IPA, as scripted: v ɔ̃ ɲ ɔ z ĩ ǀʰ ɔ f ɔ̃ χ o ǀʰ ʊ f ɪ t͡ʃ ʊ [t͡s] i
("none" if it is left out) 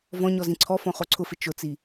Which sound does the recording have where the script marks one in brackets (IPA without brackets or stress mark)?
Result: t͡s